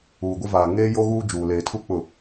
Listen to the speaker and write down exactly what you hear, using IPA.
uː˨ ɡʷ ɪ˦ v aː˨ ŋ eː˦ j o˦ ɣ uː˦ d͡ʒ uː˨ l eː˨ tʰ u˦ k͡p ʊ˨

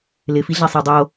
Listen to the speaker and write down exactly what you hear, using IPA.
l ɪ f i ɮ ɛ sˤ e dˤ o

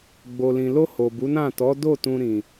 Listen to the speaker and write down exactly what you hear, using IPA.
ɡ͡b o˨ l ĩ˨ l o˧ h o˨ b u˨˦ n ã˦˨ t ɔ˨˦ d o˦˨ t ũ˧ ɾ ĩ˨

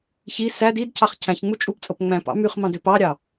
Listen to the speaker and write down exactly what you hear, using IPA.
ç i s æ d i d cʰ ɑ χ cʰ æ̃ ç ŋ͡m u t͡ʃʼ u p t͡sʼ o p ŋ͡m æ̃ p ɑ̰ m y χ m ɑ̃ d ø p ɑ ɾʲ ɑ

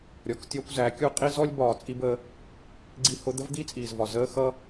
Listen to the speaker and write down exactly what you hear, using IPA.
ɾʲ ɔ˨ k tʲ ɒ˧ kʷ z æ˨˦ kʲ u˧ qʼ i˦ z ɔ˦ lʲ b ɒː˨ t͡sʼ i˧ b əː˧ | ɡ͡ǀ i˧ h ʊ˧ d̪ ə˦ v d̪ i˦ t͡sʼ iː˨ z v ɒ˨ z əː˧ x ʌ˦

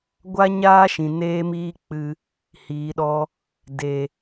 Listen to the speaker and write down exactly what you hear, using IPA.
ɡʷ a˦ ɲ aː˦ ʃ ĩ˨ n eː˦ m iː˦ k͡p ɨ˧ | h iː˨˦ ɗ ɔ˦ | d e˨

